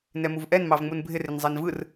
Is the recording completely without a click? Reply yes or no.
yes